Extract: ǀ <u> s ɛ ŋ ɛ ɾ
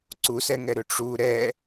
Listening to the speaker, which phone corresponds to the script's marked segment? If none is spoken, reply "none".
u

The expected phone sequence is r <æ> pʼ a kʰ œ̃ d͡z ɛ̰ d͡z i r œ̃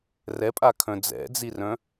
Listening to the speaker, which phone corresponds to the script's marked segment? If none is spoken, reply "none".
ɛ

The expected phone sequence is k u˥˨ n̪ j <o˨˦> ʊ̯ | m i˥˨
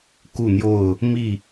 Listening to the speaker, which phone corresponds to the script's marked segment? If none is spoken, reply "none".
o˥˨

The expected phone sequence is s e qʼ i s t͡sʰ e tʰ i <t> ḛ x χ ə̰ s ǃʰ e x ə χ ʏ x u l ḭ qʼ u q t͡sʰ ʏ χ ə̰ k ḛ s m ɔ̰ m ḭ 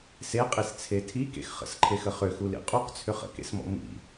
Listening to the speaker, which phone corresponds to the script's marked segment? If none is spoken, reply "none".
k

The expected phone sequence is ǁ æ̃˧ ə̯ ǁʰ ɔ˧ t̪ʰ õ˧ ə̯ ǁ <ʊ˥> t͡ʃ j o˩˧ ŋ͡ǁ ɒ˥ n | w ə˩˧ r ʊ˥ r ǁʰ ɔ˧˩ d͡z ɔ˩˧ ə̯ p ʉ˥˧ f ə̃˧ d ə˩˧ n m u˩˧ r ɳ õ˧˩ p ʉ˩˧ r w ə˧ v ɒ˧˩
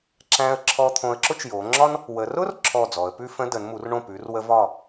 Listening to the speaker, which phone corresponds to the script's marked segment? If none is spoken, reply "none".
ʊ˥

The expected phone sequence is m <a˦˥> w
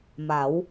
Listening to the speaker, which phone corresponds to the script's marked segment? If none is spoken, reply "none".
a˩˦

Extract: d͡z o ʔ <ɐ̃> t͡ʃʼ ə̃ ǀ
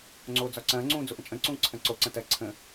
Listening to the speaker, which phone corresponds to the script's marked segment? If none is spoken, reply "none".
ə̃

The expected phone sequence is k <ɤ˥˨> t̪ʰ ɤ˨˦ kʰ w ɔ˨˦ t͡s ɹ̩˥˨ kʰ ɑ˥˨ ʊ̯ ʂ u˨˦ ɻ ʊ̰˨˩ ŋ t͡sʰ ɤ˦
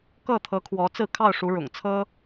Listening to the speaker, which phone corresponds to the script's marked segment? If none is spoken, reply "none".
ɤ˥˨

